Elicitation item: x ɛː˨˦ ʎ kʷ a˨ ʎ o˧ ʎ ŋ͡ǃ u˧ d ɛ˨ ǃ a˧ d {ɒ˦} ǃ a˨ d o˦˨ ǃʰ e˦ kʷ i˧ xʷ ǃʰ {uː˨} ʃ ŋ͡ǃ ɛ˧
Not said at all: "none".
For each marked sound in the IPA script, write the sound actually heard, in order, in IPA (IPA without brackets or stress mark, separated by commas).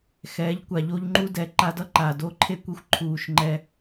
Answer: ʌ˦, uː˨